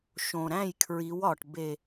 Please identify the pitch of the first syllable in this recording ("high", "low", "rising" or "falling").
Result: low